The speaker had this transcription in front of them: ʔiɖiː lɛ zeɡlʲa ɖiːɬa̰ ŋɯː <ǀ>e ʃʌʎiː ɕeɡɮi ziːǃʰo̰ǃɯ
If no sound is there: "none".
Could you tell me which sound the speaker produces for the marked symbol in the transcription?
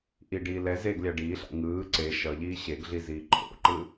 ǀ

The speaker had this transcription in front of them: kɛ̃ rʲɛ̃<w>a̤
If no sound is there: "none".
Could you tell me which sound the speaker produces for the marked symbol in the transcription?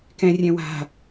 w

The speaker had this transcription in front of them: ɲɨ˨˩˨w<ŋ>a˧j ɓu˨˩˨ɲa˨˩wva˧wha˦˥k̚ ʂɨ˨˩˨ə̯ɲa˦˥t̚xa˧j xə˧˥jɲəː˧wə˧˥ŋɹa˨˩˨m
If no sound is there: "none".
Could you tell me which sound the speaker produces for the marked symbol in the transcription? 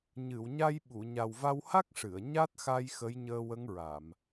ɲ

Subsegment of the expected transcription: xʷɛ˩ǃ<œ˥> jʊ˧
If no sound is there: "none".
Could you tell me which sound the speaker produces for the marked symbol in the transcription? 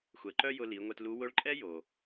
œ˥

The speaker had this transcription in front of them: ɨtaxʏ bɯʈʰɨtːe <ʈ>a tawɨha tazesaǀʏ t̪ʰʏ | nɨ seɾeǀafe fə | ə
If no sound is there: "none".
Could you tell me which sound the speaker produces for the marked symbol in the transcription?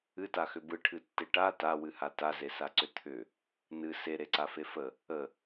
ʈ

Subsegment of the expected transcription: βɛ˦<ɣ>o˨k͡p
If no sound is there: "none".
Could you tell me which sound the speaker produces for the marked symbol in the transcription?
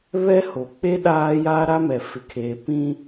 h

